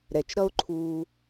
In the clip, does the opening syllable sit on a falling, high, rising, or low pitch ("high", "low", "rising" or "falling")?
low